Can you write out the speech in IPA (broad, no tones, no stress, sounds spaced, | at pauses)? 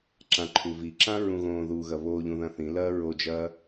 ǁ ã ǃʰ u v i ǁ ã ɹ ũ ɣ õː ð u ɣ ɐ β o ʎ ũ ð ɐ̃ θ ĩ l ɐː ɹ o d͡ʒ ɐː